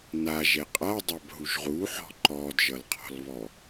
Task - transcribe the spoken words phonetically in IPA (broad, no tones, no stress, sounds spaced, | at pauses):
n a ʒ ɛ qʼ a dˤ a b ɦ u ʒ ʁ u ħ ɔ̤ ǃ ɔ d ʒ ʌ l qʰ ɔ̤ l β ɔ